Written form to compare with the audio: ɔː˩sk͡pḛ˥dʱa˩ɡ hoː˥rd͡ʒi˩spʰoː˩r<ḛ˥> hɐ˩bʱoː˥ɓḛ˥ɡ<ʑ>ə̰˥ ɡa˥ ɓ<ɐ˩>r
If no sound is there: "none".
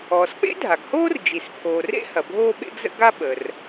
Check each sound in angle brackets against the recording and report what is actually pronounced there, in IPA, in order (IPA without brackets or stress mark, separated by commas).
ḛ˥, z, ə˩